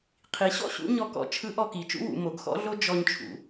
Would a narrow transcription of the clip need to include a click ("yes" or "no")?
no